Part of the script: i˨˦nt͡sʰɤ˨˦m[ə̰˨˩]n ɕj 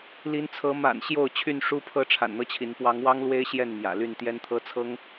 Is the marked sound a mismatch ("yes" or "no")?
yes